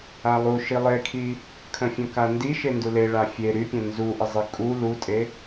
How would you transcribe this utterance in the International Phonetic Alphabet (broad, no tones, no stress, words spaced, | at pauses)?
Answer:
alˠuʃi lˠekʰi | kʰə̃fʲə̃kandi ʃendule ɭafʲe ɾypʲə̃ nzuʔəzˤi kʼu lutʼe